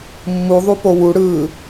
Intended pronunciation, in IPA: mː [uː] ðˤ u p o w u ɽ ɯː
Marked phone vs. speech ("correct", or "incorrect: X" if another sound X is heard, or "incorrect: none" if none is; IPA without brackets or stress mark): incorrect: u